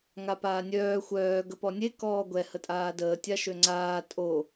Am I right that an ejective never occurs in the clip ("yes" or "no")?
no